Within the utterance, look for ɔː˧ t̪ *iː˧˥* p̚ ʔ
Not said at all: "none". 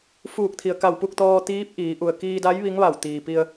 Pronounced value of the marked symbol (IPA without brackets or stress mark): iː˧˥